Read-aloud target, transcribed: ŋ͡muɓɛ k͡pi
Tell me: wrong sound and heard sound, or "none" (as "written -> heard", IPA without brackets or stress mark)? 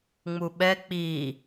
none